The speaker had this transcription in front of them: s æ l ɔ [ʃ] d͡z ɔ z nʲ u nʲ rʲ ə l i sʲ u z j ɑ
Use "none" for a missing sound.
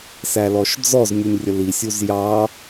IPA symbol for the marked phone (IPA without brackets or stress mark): ʃ